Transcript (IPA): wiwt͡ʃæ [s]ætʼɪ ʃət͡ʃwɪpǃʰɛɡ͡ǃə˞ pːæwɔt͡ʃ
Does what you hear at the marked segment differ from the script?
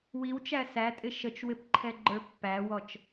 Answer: no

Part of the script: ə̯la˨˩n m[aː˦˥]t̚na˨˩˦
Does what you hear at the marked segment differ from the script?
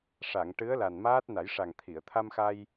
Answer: no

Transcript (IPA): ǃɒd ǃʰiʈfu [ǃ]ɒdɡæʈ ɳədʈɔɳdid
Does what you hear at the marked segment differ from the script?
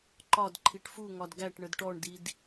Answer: yes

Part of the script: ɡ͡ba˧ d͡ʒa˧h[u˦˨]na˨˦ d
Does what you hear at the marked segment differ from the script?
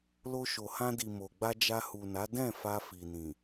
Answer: yes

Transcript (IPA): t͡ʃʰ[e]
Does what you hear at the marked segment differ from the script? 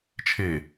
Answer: no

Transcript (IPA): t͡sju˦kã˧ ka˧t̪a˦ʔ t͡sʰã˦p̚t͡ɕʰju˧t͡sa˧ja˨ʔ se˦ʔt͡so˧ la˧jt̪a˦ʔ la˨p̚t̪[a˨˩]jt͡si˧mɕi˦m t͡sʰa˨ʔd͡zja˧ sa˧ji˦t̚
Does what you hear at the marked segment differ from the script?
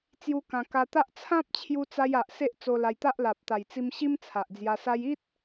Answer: no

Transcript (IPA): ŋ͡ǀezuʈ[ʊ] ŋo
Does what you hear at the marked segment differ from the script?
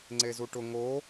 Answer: no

